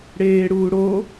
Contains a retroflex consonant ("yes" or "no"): yes